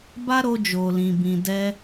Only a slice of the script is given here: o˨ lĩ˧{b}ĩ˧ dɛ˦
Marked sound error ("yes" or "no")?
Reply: no